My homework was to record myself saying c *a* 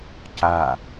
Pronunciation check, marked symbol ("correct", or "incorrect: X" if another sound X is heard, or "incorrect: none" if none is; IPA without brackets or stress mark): correct